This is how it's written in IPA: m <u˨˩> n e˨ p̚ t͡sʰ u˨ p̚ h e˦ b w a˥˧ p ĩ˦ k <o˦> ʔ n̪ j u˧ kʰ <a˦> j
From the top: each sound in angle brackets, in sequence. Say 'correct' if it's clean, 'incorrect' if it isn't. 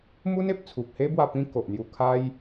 incorrect: u˦, incorrect: o˨, incorrect: a˧

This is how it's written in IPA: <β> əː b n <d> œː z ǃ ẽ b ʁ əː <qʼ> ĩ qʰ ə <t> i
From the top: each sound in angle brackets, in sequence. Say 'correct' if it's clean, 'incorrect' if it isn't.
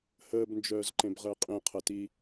incorrect: h, incorrect: d͡ʒ, correct, correct

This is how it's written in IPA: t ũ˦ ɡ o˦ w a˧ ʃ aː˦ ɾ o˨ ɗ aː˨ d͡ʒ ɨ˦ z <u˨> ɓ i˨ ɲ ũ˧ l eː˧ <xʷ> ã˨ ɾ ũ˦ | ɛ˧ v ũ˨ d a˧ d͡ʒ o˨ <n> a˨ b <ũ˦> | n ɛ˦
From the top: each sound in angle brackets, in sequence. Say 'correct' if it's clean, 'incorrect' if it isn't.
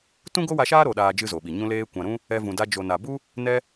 incorrect: o˨, incorrect: kʷ, correct, incorrect: u˦

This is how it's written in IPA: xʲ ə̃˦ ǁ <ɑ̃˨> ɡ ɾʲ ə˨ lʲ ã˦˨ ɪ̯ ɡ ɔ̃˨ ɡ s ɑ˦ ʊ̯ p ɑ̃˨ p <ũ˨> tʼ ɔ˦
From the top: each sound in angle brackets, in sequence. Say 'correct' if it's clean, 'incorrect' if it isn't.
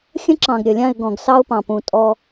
correct, correct

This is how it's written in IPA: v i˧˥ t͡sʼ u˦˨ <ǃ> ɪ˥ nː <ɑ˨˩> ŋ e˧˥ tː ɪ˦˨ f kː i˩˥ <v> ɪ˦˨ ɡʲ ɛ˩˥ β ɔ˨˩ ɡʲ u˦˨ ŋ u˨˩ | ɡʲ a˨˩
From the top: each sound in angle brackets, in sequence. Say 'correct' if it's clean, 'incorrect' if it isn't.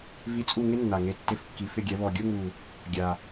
incorrect: ŋ, incorrect: a˨˩, incorrect: f

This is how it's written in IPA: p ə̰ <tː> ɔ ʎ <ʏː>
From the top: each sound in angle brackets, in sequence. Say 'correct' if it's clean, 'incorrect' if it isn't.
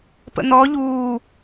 incorrect: n̪, incorrect: uː

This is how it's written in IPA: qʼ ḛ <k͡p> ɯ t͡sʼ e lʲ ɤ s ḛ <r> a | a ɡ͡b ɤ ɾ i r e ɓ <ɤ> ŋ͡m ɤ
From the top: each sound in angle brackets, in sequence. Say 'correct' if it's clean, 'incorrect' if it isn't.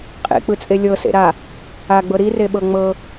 correct, incorrect: ɾ, correct

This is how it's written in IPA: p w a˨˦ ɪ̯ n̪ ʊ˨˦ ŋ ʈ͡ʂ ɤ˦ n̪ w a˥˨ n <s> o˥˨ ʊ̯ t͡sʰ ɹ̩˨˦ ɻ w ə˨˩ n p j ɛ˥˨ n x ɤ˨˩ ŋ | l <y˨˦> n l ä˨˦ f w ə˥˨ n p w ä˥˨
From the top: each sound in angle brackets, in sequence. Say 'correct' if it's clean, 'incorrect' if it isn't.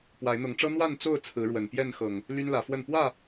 incorrect: t͡s, incorrect: y˦

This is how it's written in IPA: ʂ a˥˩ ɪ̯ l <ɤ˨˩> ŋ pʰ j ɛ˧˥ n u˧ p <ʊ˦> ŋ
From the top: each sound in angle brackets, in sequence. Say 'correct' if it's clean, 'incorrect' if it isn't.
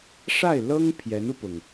incorrect: ɤ˥, incorrect: ʊ˩

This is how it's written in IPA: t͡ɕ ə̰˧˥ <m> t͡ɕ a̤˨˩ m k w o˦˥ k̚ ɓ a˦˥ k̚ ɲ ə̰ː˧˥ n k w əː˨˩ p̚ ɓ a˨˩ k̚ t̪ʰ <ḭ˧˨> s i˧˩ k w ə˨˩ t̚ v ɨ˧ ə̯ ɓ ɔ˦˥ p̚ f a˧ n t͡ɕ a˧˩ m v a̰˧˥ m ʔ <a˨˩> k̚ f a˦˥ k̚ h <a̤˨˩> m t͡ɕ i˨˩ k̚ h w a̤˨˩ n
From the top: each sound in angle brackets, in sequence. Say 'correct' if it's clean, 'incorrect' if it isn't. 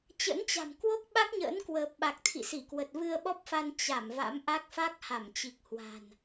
incorrect: n, correct, incorrect: a˦˥, incorrect: a˧˩

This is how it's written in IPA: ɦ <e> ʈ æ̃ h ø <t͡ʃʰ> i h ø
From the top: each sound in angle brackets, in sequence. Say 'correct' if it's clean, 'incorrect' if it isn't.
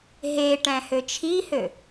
correct, correct

